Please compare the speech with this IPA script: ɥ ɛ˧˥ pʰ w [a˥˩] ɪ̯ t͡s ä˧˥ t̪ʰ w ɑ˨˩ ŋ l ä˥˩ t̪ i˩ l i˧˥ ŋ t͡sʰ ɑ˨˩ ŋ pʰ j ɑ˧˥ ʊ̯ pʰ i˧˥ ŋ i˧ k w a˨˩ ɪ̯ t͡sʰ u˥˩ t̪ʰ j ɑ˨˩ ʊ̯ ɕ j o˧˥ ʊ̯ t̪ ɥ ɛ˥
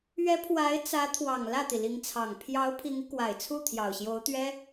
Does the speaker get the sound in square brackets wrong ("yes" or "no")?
yes